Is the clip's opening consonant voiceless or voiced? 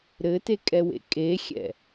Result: voiced